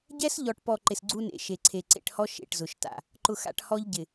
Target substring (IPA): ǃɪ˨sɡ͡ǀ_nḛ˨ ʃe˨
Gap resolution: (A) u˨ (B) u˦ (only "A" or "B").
B